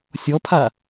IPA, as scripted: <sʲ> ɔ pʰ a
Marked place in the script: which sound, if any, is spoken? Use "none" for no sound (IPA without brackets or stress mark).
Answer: sʲ